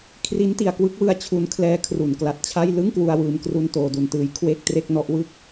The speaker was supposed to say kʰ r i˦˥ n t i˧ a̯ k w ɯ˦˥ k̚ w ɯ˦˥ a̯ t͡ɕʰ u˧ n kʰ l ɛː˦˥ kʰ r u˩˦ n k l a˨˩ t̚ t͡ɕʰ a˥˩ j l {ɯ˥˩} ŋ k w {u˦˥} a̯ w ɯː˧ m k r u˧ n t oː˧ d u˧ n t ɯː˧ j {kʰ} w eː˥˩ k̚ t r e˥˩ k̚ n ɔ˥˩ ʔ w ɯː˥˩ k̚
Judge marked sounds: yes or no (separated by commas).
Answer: yes, no, yes